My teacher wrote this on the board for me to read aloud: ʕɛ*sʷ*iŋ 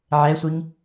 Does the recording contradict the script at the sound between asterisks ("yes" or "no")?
no